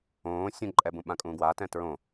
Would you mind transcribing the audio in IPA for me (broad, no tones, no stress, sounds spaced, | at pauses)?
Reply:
õː sʲ ũ ǃʼ ɛ b ũ ɓ ã kʼ ũː ɡ w a t ɛ̃ t ɹ õ